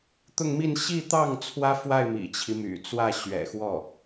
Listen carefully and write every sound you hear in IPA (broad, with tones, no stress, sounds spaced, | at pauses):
t̪ ʊ˥˧ ŋ m i˥˧ n ɕ i˥˧ t̪ ɑ˥˩ ŋ t͡sʰ w ä˥ f w a˥˩ ɪ̯ m ḭ˨˩ t͡ɕʰ i˦ m y̰˨˩ t͡s w ä˥˩ ɕ ɥ ɛ̰˨˩ x w ɔ˥˩